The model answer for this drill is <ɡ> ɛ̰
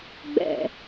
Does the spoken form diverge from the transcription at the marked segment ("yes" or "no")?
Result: yes